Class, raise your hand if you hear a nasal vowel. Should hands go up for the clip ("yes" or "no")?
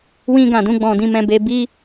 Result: yes